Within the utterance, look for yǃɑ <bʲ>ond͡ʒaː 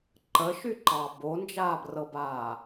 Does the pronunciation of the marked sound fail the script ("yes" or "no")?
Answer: yes